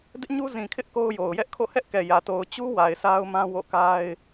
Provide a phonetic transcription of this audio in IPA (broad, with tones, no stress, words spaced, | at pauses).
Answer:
dɪ˦ʔɲu˦zĩ˨kʰɪ˦ʔ ko˦ʊ̯jo˨ʊ̯ jɛ˦ʔkʰo̰˦˨hɛ˦ʔ kɛ˨jä˨ to˨ʊ̯t͡ɕu˦ wa˨ɪ̯sʰa˦ʊ̯mã˦ wo̰˦˨ka˦ɪ̯